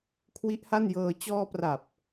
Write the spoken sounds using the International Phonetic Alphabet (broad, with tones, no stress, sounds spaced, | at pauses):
kʰ w i˦˥ ʔ h a˥˩ n j ɤː˧ t͡ɕ ɔː˧ p r a˨˩ p̚